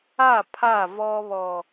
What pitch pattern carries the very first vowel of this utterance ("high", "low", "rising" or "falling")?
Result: falling